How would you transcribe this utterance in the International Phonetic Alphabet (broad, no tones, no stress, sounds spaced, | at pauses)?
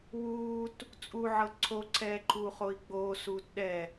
w uː t | t͡sʼ u ʕ ɤ ǀʰ o ǀʰ ɛː ǃʰ uː χ o i̯ ɡ͡b oː s uː t ɗ ɛ